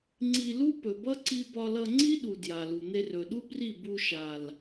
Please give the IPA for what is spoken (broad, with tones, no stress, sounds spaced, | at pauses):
ŋ͡ǀ i˧ l u˦ p ɵ˨ b ʌ˦ ǀ i˧ b ɒ˧ l ʌ˧ ŋ͡ǀ i˦ ɗ u˨ d j a˨ l u˨ n̪ e˧ r ɵ˨ ɗ u˦ b r i˦˨ b u˧ ʃ a˨ l